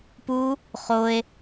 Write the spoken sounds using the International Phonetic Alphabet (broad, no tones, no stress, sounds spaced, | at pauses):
p u | χ o e̯